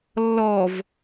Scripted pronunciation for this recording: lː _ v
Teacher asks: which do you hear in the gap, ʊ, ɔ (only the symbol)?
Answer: ɔ